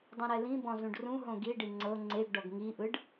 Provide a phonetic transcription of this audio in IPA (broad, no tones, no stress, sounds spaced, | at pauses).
dˤ ũ ɾ ɛ l ĩ b ɔ̃ z ũ ɖ r ũ ɦ õ ɡ i ɖ i ŋ͡ǀ ɤ ŋ͡ǀ e ɡ ɖ ɔ ɡ ŋ i ʔ ɯ ɖ